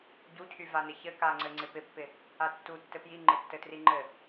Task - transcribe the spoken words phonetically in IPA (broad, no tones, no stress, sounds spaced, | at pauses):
ɟ u cʰ y v a n ɪ ç ɘ k a ŋ͡ǀ ɘ ŋ͡ǀ ɪ p ɪ pː ɪ | a tː u tː ɘ p j i ŋ͡ǃ ɪ tː ɘ t r i ŋ͡ǃ ɘ